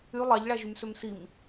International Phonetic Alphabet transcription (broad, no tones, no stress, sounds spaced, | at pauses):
y lˠ ɑ ʎ ɭ æ ʒ y m s ø m s i m